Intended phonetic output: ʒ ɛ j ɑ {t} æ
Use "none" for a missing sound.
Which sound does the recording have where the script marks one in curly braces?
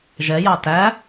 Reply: t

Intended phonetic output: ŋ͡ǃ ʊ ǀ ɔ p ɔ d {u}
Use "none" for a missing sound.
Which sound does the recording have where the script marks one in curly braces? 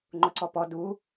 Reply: u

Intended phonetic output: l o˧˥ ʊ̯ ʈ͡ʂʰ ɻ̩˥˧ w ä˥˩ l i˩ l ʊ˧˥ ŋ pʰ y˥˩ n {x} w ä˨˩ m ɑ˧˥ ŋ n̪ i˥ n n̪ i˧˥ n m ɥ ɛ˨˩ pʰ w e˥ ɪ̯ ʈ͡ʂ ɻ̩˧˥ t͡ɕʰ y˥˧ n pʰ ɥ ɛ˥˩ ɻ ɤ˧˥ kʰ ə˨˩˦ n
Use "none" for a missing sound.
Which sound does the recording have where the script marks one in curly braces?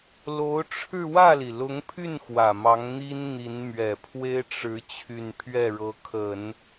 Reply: x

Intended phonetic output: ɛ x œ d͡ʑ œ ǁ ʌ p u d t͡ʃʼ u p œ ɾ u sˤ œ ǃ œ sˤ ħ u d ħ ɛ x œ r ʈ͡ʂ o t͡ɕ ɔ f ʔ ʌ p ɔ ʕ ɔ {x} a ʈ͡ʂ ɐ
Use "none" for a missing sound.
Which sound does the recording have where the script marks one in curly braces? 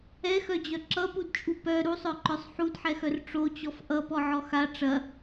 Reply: x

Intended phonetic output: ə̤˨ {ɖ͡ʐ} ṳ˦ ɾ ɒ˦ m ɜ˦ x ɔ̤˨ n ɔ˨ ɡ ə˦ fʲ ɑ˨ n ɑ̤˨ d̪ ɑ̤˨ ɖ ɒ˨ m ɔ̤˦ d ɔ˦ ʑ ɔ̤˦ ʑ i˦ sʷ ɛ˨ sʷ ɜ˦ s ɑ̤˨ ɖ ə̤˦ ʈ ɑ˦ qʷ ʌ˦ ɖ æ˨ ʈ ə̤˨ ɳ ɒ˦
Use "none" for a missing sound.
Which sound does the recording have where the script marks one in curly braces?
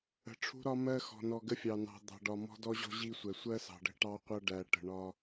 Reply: ʈ͡ʂʰ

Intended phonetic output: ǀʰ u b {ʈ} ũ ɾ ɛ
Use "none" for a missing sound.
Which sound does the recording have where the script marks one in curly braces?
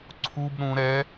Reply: ɾ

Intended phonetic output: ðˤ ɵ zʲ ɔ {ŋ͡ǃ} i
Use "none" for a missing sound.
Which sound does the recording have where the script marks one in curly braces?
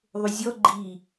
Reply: ɡ͡ǃ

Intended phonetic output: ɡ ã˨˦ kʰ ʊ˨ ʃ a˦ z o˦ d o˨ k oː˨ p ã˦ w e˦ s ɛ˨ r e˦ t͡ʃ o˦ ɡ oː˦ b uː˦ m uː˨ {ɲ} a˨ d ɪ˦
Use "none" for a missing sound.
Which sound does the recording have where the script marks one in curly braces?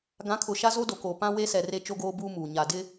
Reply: ɲ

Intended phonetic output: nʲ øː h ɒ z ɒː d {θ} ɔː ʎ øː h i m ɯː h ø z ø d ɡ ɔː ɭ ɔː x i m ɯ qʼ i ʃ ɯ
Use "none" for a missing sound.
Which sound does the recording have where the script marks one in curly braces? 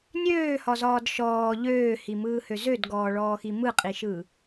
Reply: ʃ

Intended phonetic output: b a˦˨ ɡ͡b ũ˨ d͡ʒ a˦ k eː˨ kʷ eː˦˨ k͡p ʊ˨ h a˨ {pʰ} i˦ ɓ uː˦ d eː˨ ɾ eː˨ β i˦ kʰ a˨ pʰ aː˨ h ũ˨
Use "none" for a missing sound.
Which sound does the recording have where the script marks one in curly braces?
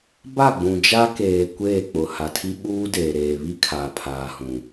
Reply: tʰ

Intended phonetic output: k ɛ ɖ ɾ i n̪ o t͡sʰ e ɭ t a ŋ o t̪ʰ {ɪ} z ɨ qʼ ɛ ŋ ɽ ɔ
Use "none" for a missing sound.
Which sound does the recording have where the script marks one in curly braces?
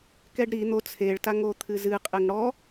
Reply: ɨ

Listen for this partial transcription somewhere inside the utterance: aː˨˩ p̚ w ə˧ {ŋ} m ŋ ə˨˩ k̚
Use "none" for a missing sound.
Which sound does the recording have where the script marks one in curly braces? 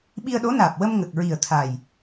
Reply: none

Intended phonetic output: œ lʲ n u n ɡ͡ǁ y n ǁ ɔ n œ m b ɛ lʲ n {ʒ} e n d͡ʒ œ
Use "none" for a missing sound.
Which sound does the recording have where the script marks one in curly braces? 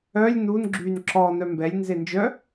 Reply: z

